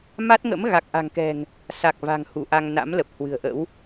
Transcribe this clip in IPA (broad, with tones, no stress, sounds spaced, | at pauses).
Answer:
m a˦˥ t̚ ŋ ə̰˧˥ m ɣ a˨˩ k̚ ʔ a̤˨˩ ŋ k ɛ̤˨˩ ŋ | s a˨˩ k̚ v a̤˨˩ ŋ h u˧˩ ʔ a˧ ŋ n a̰˧˥ m l ə˨˩ p̚ h w ɨ̤˨˩ ə̯ ʔ ə̰˧˥ w